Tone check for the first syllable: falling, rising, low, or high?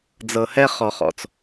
low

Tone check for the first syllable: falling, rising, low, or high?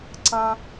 high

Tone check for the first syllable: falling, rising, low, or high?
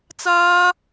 high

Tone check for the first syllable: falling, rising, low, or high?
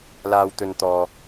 low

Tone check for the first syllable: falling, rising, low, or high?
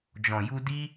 low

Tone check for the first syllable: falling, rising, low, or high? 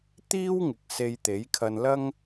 high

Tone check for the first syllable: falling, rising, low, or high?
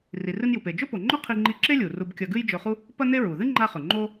low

